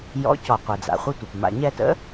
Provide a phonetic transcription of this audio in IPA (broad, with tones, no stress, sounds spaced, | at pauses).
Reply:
j ɔ̰˨˥ c ɔ˩ qʷ ɛ˩ d͡z a̰˩ χʷ ə˦˨ tʷ ə˩ p m a̰˩ ɲ ɛ˦˨ t ə̰˨˥